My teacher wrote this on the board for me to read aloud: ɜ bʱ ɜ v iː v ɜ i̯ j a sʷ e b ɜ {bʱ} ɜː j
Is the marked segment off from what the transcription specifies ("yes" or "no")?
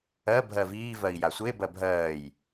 no